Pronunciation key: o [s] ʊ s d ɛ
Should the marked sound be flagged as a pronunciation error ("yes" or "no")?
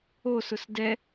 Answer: no